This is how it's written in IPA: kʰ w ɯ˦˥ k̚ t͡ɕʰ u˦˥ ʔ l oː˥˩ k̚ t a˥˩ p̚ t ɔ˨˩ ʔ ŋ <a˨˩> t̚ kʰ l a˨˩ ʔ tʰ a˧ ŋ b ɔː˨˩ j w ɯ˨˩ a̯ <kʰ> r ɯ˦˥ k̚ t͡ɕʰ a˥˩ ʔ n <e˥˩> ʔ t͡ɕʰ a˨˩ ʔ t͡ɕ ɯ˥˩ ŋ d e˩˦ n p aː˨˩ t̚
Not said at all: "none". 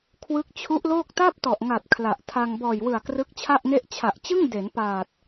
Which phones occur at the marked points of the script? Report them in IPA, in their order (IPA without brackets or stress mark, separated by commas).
a˨˩, k, e˥˩